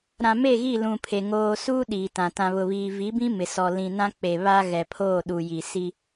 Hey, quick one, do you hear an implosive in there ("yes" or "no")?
yes